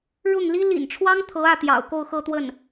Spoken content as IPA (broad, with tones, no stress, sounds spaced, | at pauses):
ɻ ʊ˥˩ ŋ l i˥ l ḭ˨˩ n ʈ͡ʂʰ w ɑ˥ ŋ t̪ʰ ɤ˧˥ ä˥˩ t̪ j ɑ̰˨˩ ʊ̯ k o˥˧ ʊ̯ x ɤ˥˧ t̪ w ə˥˩ n